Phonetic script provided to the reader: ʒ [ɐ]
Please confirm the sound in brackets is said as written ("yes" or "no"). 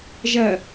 yes